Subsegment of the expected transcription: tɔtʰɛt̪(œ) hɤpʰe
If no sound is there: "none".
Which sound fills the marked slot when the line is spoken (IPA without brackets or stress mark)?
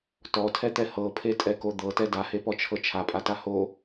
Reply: ɛ